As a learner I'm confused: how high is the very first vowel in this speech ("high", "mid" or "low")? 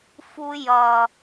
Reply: high